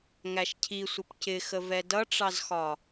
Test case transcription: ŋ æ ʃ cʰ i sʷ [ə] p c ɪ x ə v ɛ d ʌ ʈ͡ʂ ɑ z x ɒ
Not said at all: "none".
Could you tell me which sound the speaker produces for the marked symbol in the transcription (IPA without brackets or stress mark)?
ə